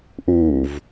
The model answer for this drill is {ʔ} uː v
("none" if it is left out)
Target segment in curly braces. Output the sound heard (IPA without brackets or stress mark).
ʔ